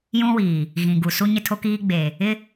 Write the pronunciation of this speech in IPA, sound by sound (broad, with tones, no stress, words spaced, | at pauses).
jũ˦wiː˨ | ɣĩ˨ɡu˨ su˦ɲɪ˦tʰo˦kiː˦ ɡ͡be˨ | ɪ˦